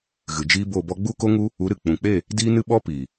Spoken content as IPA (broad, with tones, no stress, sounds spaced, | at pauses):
ɣ ɨ˨ d͡ʒ iː˦ b o˦˨ b ɔ˦ ɡ͡b u˦ k o˦ ŋ u˦ | u˨˦ ɾ ɨ˨ k͡p ũ˨ k͡p e˦˨ | d iː˦ n ɨ˦ ɓ ɔ˦ p iː˨